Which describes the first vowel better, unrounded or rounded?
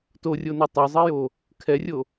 rounded